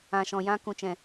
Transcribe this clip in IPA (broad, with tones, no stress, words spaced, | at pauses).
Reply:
ã˨ʃɔ̃˨jã˧ kũ˨t͡ʃɛ̃˨